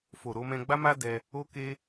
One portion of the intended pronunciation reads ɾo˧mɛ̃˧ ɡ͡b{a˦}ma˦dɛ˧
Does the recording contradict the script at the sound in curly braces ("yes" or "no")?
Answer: no